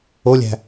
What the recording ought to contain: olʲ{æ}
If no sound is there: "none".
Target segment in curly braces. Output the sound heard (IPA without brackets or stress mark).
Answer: æ̤